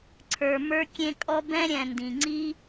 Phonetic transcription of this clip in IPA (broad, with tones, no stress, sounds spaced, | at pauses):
ǀʰ ə˞˨ m ə˞˧ kʲ ẽ˧ kʼ ɔ˧ b ɛ̃˦ ɾʲ ɛ̃˨ n d ĩ˨ ŋ͡ǀ i˦